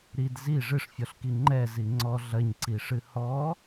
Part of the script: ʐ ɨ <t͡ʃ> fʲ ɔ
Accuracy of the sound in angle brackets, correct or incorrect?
incorrect